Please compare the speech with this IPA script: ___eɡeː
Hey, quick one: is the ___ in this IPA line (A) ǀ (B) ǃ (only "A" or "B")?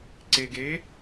A